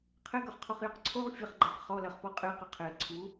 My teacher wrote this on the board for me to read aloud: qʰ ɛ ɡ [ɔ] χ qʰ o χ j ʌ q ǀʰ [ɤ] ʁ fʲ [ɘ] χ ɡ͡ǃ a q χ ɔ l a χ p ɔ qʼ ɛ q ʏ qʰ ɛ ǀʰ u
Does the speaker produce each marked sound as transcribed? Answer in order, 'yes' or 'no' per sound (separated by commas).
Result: no, no, yes